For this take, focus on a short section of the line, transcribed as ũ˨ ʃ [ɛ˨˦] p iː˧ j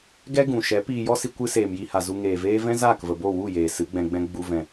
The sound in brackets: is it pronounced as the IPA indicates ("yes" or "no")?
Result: yes